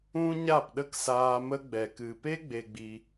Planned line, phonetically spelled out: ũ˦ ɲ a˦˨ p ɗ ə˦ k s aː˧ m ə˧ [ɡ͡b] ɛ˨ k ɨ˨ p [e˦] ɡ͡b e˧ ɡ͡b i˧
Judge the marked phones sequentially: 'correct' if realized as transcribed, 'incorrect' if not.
correct, correct

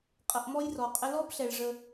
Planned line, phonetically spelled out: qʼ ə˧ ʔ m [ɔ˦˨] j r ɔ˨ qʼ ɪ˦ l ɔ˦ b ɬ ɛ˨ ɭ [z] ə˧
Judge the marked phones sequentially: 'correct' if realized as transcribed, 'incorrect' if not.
incorrect, incorrect

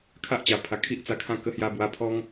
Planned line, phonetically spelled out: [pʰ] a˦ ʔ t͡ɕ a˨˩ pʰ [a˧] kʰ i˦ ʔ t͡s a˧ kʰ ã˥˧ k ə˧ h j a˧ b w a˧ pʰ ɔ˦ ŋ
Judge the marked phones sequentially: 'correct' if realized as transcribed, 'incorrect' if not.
incorrect, incorrect

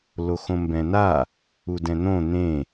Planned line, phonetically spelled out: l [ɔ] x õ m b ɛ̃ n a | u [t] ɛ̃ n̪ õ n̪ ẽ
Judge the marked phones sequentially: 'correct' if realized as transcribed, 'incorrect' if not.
incorrect, incorrect

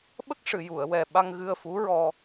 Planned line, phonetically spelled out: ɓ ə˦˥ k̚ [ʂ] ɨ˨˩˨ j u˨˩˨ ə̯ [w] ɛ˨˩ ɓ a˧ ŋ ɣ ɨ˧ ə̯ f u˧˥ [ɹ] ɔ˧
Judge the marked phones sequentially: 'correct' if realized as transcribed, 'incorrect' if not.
correct, correct, correct

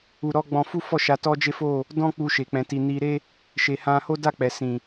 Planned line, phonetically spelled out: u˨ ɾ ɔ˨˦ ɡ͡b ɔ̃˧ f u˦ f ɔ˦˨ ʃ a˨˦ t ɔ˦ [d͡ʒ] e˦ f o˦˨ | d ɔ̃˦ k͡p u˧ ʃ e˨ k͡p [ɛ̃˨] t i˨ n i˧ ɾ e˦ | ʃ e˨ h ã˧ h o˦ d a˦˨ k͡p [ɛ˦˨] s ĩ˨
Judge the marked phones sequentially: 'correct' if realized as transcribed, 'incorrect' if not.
correct, correct, incorrect

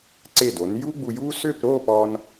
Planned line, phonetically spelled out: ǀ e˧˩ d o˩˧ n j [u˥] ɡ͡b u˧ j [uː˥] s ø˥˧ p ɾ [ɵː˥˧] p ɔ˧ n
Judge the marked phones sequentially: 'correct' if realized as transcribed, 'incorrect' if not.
correct, correct, incorrect

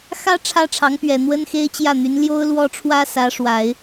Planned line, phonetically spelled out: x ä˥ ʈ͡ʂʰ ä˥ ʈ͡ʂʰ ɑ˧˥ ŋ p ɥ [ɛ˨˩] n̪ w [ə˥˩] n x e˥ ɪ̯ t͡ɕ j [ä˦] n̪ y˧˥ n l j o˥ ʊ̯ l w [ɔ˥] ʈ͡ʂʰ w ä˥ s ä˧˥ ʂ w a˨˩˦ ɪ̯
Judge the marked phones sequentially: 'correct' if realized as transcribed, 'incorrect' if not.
correct, incorrect, incorrect, correct

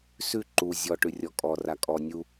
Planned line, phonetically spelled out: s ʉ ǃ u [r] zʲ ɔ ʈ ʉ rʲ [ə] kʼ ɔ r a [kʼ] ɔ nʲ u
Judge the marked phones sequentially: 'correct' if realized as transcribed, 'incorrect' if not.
incorrect, incorrect, correct

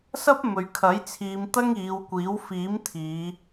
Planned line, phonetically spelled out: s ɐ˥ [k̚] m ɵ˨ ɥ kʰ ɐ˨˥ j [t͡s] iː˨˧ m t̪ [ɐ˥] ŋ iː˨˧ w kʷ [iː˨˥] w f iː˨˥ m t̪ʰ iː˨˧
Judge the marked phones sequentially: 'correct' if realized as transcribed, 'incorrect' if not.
incorrect, incorrect, correct, correct

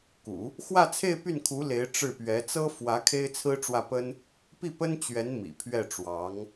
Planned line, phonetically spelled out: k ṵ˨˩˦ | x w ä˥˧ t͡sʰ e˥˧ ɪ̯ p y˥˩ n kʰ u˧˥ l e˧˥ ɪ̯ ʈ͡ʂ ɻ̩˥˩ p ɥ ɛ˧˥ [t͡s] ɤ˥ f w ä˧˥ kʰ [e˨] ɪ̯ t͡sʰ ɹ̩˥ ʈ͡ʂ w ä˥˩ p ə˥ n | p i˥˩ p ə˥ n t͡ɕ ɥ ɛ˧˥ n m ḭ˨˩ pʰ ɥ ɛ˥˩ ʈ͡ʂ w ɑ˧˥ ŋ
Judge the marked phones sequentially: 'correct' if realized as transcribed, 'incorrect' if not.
correct, incorrect

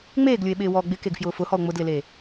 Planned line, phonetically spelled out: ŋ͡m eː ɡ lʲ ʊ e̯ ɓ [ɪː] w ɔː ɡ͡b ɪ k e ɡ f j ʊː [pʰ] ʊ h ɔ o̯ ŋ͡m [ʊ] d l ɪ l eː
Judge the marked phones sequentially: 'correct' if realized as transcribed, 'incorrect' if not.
correct, incorrect, correct

